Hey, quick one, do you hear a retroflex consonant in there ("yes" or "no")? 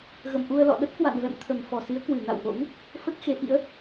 no